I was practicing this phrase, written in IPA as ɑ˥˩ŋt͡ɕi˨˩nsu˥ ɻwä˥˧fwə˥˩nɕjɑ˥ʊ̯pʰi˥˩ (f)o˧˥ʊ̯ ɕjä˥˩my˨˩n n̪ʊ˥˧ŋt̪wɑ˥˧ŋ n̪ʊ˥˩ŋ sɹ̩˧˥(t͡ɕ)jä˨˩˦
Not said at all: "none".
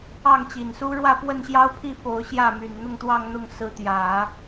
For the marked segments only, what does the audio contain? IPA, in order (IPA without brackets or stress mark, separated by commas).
f, t̪